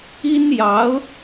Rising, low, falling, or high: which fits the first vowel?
high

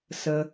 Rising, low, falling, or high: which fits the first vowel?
low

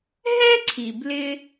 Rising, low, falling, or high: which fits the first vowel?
high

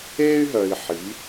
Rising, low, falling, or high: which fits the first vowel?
high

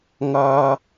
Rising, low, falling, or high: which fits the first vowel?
low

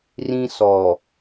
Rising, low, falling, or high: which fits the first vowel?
high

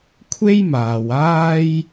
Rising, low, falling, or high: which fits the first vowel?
high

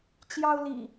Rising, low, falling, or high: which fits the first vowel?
high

